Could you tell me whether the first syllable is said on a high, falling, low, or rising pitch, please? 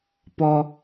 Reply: high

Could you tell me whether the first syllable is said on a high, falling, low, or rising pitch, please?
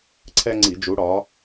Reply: high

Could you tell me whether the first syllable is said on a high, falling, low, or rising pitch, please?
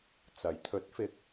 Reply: rising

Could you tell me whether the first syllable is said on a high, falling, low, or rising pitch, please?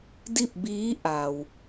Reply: falling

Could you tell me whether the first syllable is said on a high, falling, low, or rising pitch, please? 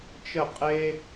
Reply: falling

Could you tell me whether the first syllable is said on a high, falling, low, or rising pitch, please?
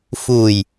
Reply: low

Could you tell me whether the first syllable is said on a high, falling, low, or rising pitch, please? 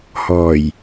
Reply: low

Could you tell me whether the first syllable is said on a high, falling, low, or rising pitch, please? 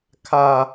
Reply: low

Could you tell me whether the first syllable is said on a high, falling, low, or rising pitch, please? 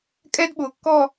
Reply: high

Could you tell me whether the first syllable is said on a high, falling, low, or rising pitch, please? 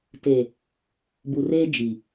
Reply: low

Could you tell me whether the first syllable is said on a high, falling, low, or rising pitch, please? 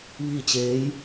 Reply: falling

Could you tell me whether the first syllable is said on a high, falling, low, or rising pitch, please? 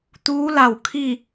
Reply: rising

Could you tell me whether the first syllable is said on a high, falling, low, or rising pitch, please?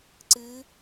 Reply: rising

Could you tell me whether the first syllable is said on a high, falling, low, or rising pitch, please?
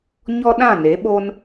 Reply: high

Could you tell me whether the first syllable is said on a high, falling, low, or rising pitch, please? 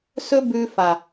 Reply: high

